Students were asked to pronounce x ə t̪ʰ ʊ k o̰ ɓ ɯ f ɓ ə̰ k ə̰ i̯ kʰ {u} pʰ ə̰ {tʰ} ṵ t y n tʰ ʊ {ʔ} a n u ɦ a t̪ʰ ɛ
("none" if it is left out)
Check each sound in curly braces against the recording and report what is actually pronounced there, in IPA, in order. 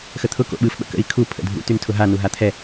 u, dʱ, ɦ

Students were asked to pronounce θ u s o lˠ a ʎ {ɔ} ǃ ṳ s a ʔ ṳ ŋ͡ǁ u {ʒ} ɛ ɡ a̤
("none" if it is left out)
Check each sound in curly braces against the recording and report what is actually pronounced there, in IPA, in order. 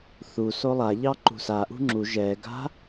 ɑ, ʒ

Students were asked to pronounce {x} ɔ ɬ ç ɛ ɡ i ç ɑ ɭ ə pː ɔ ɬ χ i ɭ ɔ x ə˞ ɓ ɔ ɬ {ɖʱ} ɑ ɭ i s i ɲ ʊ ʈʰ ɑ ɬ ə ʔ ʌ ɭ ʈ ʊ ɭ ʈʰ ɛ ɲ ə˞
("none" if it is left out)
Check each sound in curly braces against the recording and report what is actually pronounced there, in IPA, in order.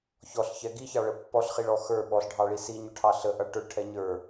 ç, ɖʱ

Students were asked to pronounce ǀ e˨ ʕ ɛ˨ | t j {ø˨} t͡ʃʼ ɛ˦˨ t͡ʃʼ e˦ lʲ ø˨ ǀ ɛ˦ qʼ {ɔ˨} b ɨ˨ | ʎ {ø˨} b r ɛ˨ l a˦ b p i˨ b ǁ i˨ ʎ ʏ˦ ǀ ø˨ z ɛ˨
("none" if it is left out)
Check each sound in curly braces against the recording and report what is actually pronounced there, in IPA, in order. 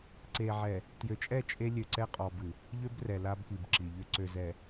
ø˨, ɔ˨, ø˦

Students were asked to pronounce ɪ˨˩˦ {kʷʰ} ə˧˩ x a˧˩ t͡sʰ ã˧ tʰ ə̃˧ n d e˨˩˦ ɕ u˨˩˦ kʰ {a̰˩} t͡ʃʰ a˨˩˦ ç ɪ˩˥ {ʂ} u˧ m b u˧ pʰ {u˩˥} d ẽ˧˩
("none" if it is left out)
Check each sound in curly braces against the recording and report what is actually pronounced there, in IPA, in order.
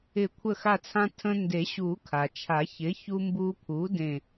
kʷʰ, a˩, ç, u˩˥

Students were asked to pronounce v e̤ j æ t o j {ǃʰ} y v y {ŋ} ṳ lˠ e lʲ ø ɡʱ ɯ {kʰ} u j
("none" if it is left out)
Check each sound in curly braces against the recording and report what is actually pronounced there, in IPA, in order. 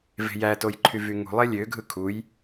ǃʰ, ŋ, kʰ

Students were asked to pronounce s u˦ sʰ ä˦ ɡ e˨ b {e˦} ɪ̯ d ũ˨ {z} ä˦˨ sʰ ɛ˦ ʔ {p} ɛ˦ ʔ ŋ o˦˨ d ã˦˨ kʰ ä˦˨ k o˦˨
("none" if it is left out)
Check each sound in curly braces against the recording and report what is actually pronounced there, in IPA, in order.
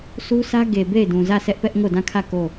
e˦˨, z, p

